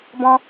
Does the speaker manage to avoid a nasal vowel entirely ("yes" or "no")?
no